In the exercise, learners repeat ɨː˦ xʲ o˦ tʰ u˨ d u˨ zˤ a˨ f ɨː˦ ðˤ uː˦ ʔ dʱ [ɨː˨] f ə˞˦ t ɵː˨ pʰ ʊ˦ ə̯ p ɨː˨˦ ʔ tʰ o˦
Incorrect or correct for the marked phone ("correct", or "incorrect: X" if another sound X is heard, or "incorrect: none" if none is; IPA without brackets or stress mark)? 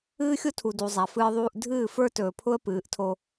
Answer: incorrect: ɨː˦˨